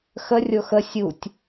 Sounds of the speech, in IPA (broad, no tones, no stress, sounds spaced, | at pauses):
x ə rʲ o x ə sʲ u tʲ